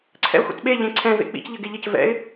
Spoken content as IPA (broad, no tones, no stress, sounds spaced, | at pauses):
ǀʰ ɛ̰ ə̯ xʷ ḛ t ɓ e ʎ ẽ ǀʰ ɛ̃ v ḛ k͡p ḭ c ʎ ɘ ɡ e ʎ ɘ c v ɛ̰ ɪ̯